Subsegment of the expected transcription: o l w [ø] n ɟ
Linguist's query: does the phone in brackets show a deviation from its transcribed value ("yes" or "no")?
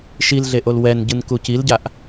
yes